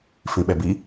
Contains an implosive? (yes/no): yes